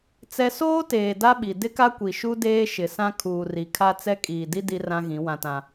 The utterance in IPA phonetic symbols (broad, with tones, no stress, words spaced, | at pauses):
t͡sɛ˦ soː˦teː˨ da˦ɓi˨ dɪ˦ka˦kʷi˨ʃu˦ deː˦ʃɪ˨sã˦ kʰuː˨ri˨kʰa˦ t͡sɛ˦ kʼiː˨di˦ di˦rã˦ɣĩ˨˦ wã˨tã˨